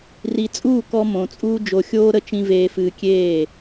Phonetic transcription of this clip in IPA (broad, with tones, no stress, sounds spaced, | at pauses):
r i˨ t͡sʼ uː˦˨ k ɔ˧ m õ˨ t͡sʼ uː˦ d͡ʒ o˧ xʲ oː˦ ɾ ə˦ t͡ʃ ĩ˦ v eː˧ f ɨː˧ kʲ eː˦˨